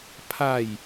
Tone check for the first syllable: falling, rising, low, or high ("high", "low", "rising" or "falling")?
falling